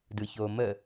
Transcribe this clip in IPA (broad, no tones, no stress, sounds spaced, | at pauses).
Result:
d ɯ ç oː m ə